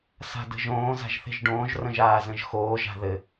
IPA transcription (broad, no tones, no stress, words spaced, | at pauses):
sa̤də̤ʒõː za̤ʒθe̤ʒɖõːʒ rə̃ʒaːzə̃ʒxoː ʒa̤ðɘ